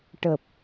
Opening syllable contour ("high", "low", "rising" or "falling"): low